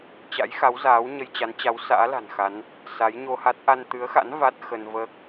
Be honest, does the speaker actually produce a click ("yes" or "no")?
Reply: no